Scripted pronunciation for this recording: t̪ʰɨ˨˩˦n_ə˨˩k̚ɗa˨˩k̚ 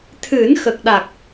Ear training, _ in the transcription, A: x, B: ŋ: A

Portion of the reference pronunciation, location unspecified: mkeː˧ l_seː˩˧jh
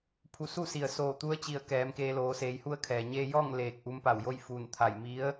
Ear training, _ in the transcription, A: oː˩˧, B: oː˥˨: A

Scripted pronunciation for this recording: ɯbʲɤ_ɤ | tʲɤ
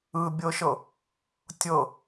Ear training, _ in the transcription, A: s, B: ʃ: B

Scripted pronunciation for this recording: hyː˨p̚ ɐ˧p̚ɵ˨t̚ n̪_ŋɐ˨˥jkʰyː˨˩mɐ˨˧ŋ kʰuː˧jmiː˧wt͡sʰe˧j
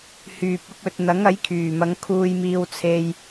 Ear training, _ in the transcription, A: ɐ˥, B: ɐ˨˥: B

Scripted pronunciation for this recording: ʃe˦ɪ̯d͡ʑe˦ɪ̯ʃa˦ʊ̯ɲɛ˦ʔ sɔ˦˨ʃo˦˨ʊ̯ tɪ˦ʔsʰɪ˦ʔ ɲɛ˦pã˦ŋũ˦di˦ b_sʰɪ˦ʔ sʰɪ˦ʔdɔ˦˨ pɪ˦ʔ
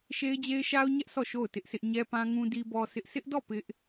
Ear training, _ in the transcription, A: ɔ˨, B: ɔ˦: B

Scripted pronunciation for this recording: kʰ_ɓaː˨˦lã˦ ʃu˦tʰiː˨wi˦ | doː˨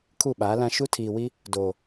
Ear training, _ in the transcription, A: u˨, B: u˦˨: B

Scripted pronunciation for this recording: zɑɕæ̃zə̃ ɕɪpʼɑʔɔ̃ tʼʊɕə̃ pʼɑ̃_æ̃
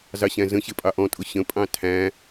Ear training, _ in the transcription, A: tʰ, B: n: A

